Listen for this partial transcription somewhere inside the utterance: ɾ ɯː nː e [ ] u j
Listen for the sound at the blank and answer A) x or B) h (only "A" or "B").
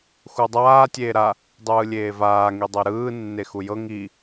A